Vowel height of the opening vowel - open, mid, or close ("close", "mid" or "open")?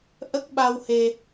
mid